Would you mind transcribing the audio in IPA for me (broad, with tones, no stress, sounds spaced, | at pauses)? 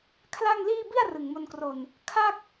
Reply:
kʰ l a˥˩ ŋ l iː˥˩ b i˥˩ a̯ r ɯ˨˩ ŋ m o˧ n k r o˧ n | kʰ a˥˩ k̚